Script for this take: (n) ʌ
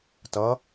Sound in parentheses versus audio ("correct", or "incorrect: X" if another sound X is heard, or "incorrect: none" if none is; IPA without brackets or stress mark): incorrect: t